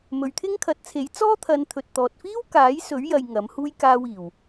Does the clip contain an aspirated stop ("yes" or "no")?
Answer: yes